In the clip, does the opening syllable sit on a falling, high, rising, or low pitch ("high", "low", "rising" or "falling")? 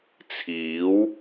rising